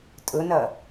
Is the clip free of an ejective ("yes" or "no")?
no